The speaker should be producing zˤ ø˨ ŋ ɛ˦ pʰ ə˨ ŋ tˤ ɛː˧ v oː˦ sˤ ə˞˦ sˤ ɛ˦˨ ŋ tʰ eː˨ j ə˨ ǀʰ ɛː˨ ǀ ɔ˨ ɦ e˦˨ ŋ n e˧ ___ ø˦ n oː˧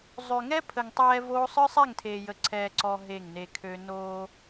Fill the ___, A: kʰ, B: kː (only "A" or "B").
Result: A